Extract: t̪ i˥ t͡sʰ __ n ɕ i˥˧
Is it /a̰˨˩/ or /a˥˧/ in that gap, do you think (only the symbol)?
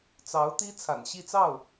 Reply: a̰˨˩